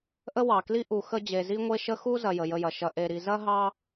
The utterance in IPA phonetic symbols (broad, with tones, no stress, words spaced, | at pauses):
ʔə˥wɑ˨kli˥ ʔu˨xə˦ d͡ʑe˨zi˥ŋʷe˥ʃə˥ xu˥ zɐ˨jə˩jə˨jɐ˩ ʃɐ˨ʔe˨ɾi˨ zɐ˥ɦɑ˦